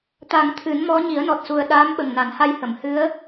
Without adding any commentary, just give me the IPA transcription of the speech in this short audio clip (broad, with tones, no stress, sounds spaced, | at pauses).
t̪ a˨˩˦ ŋ t̪ʰ ɨ˨˩˦ n m ɔ˧˥ ɲ i˨˩˦ ə̯ n ɔ˨˩ t̚ s u˨˩ ə̯ ɗ aː˧˥ m ɓ ə˨˩ ŋ n a˨˩˦ n h a˧ j h ə˨˩˨ m h ɨ˧˥ ə̯